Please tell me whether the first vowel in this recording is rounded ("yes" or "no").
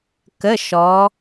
no